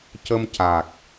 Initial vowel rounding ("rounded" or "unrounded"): unrounded